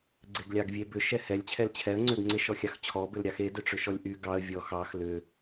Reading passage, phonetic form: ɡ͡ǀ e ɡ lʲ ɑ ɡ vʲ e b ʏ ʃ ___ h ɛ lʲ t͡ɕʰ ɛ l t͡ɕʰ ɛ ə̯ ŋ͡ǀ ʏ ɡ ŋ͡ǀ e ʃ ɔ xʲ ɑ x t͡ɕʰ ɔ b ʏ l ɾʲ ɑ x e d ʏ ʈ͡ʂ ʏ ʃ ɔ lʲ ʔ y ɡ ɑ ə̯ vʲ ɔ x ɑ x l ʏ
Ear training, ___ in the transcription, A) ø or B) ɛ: B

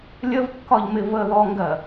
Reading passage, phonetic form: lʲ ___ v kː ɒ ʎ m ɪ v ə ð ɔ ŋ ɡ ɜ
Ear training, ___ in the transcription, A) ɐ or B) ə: B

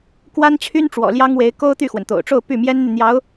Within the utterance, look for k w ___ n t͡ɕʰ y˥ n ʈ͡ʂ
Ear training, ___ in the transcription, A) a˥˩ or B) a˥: B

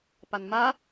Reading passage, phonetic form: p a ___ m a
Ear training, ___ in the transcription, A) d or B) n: B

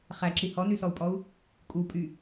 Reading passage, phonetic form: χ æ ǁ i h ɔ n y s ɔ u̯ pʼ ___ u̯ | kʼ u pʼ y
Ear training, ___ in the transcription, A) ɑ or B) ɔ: B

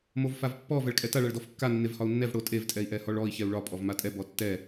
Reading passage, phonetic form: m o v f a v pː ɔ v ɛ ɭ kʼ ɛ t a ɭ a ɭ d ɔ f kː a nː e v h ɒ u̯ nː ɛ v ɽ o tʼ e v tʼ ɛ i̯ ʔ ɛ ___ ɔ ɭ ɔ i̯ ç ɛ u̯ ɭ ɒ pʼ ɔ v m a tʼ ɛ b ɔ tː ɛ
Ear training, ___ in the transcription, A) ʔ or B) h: B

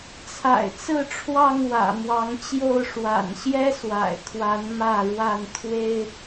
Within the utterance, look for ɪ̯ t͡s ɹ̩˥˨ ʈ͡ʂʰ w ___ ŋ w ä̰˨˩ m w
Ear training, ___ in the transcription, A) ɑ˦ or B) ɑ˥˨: B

